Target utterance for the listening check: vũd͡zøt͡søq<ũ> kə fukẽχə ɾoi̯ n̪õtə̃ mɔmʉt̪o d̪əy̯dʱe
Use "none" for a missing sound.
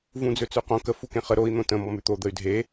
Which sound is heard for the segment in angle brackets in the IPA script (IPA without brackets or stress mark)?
õ